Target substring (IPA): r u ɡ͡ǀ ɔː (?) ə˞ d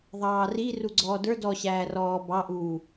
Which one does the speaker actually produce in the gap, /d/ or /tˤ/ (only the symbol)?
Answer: d